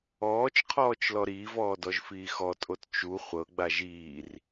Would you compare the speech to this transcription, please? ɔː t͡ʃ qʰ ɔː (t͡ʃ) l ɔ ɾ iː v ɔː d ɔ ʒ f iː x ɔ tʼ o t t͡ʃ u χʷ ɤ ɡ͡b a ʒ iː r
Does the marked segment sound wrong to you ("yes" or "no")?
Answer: no